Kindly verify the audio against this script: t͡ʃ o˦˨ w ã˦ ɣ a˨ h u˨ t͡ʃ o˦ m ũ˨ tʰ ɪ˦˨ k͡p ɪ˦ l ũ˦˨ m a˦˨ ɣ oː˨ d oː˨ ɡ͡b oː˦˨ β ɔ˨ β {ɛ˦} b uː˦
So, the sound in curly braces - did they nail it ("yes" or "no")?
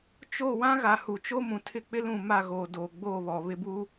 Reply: no